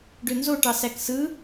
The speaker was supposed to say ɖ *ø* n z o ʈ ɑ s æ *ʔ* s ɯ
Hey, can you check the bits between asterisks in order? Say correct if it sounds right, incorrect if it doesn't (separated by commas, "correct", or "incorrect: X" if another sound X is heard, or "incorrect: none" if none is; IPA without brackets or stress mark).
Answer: correct, incorrect: k